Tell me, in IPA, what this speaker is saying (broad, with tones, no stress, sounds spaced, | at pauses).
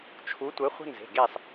t͡ʃʰ u˨˦ tʷ ɘ˨˦ χʷ ə̤˦ n z e̤˩˧˩ ɡ e˦˨ sˤ